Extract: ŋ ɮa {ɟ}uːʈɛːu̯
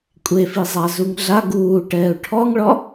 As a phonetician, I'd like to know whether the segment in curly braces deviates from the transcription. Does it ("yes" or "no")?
yes